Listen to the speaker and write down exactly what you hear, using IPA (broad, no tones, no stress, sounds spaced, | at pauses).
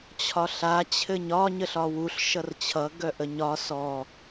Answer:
t͡ɕʰ ɒ ɬ a t͡ɕʰ ɘ ɲ ɒ ɲ ə ɬ ɒ w u ɬ ʃ ʌ r t͡ɕʰ ʌ ɡ œ ʔ ə ɲ ɒ s ɔ